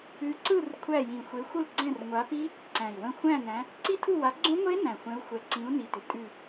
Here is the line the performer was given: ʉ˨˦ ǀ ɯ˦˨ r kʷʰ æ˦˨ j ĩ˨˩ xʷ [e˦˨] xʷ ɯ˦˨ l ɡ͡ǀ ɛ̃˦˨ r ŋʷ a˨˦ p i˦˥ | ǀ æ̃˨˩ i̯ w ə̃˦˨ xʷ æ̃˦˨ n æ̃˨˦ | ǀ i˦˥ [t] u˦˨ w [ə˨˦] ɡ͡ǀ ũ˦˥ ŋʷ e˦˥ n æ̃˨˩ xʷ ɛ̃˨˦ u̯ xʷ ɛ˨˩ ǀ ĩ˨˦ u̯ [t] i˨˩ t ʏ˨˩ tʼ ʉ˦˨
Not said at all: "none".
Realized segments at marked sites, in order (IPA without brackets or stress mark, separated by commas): e˨˦, tʰ, a˨˦, n